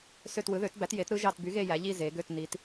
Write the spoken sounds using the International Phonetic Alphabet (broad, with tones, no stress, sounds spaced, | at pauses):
s ø˦˨ t w ɯ˨˥ ð ø˨˥ t b æ˨˥ t j e˨˥ t ɾ ɯ˦ ʒ ɑ˦˨ t b y˨˥ ɣ e˦˨ j æ˩˧ ʎ i˦˨ z e˩˧ ɡ ø˦˨ t n i˩˧ t